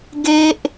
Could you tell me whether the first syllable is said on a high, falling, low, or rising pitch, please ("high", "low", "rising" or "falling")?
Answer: high